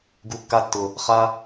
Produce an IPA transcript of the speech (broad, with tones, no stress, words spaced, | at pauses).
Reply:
ɡu˨kːa˧tːʊ˨ | χa˧